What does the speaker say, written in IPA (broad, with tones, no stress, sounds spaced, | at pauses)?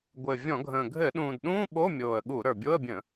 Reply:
ɡʷ ɘ˨˩ vʲ ɔ̃˧˩˧ ɡʱ ə̃ː˨˩ ɡʱ ɘ˧˩˧ ɗ ũː˨˩ d ɗ ũː˧˥˧ ɓ o˧˥˧ mʲ oː˨˩ ə̯ ɠ u˧˩˧ ɾ ə˞˨˩ bʲ o˧˥˧ ə̯ bʲ ə̃˧˩˧